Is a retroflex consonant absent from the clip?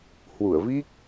yes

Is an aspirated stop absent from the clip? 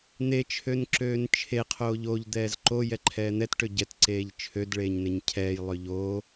no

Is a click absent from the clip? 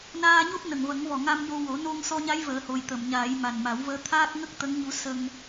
yes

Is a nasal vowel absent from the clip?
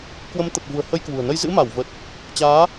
yes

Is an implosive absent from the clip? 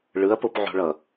yes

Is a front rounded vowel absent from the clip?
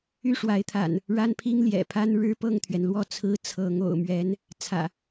no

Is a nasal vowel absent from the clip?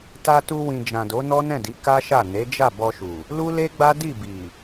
no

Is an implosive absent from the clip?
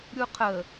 yes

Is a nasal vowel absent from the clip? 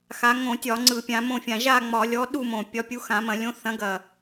no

